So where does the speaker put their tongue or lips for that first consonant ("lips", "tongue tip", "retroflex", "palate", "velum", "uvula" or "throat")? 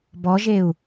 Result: lips